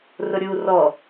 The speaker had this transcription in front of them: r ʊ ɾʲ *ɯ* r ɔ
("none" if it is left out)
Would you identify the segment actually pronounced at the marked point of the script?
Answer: u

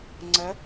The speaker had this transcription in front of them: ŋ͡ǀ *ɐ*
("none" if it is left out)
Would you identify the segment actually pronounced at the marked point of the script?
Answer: ɐ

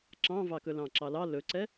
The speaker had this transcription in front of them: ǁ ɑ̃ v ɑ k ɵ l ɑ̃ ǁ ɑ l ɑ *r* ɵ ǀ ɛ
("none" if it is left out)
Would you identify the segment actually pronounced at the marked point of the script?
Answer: l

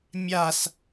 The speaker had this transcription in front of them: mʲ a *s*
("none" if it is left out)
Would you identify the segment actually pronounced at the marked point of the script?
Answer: s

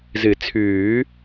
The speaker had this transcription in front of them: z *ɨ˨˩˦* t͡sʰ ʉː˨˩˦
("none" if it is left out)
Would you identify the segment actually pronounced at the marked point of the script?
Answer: ɨ˨˩˦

